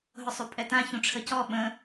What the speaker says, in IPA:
ɦʊsˤupʼɛtã çũʈ͡ʂʰəcɔ ɓə̃

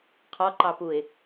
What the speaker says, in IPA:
qʰɔǃɑpuɪ̯

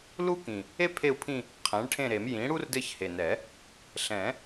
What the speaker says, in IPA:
lu˥kĩ˨˩ | e˥ pʰe˦˨u̯pʰĩ˦˨ | qʰɛ̃˩˥ɭʈʰẽ˦˨ɾe˨˩˦m jĩ˩˥ɽu˥rdɘ˦˨ç he˨˩nɛ˨˩˦ | ɬɛ̃˨˩˦

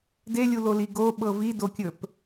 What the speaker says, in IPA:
delʲuloli ɡoɓɤ vidokʲɵp

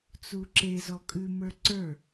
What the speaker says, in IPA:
t͡suǁe zɔkʼʉ mə˞ǀə˞

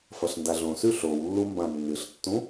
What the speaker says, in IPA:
fɐɬndaɮõsʉ ɬowlːu mbãnːɨɬtːũ

